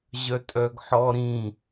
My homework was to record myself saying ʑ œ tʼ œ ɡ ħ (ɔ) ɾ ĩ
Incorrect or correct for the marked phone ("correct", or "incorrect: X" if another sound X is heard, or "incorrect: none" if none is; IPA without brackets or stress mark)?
correct